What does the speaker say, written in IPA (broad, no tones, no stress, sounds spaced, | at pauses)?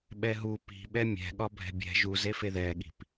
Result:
ɓ ɛ ɦ u p i̤ ɓ ɛ mʲ ɛ̤ ɠ ɒ bʱ ɛ̤ bʲ ɛ̤ ʒ u z e f e ð ɛ ɠ i̤ p